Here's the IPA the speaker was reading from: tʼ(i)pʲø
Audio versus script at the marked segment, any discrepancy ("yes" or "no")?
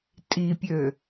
no